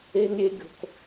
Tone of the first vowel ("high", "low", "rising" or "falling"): high